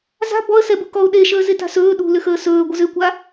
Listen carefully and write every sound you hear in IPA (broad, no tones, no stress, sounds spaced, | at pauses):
z a̤ b ɔ ə̯ s ɛ b u k ɔ ʊ̯ ɗ e ʃ əː z e t a̤ s ɵː ɗ ṳ l ʏ x əː s ɵː ɡʷ ə z ʏ kʷ a